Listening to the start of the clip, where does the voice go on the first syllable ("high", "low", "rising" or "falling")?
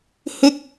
high